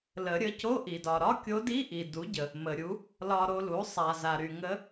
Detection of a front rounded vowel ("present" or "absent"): present